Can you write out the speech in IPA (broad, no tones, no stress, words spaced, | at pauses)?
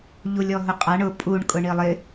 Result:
ʎulʲɔɦʊqʼaɳ ʊ pʼuɳ kʼʊɳilˠɪ